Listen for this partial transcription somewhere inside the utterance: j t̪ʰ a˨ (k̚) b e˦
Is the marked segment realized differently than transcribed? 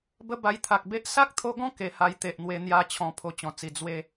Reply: no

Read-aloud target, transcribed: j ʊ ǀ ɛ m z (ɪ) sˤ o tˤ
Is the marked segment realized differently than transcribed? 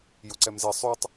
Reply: no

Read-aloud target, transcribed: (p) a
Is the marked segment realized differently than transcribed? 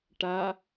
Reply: yes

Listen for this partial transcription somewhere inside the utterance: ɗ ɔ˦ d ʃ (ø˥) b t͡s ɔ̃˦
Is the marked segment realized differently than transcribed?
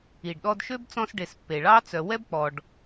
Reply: no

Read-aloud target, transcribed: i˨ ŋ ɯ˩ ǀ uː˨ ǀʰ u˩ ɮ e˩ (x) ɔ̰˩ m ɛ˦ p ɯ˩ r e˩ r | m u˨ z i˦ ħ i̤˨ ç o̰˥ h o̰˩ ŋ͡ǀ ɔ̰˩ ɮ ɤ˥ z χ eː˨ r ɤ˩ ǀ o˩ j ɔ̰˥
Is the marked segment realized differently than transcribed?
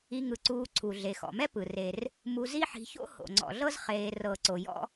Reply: no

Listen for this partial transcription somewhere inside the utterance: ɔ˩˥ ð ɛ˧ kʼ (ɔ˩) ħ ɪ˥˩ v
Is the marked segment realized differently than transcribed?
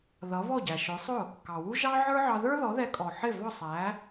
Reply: no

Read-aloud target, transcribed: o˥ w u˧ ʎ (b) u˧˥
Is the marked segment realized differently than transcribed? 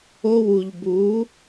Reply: no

